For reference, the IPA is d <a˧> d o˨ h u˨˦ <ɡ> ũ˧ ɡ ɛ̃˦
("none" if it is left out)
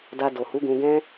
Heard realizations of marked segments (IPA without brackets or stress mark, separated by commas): a˧, ɡ